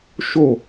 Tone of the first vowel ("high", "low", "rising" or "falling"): falling